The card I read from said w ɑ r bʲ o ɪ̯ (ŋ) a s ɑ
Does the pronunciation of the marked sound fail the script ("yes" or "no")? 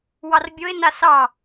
yes